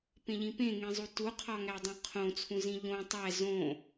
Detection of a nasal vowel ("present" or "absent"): present